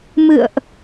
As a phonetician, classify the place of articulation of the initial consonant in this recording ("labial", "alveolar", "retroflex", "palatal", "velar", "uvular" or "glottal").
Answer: labial